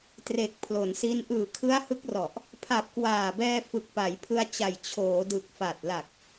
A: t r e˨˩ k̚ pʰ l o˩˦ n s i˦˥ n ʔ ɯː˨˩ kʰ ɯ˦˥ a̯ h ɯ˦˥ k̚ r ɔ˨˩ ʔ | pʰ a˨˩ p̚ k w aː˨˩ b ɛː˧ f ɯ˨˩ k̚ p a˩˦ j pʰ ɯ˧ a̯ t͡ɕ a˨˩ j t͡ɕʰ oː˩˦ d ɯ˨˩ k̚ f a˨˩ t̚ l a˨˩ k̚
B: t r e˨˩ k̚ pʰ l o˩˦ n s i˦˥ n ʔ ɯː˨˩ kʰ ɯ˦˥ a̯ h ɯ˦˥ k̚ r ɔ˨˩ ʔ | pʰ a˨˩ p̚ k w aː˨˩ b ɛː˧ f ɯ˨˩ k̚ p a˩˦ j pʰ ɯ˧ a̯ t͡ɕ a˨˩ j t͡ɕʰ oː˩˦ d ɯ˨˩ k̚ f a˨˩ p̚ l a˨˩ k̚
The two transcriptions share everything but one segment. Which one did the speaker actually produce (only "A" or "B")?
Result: A